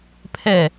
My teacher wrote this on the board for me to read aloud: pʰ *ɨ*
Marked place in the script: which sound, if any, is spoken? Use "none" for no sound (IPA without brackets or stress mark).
ɛ